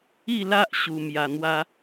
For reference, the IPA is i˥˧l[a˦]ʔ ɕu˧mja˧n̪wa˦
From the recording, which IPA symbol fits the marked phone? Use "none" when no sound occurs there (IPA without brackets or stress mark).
a˦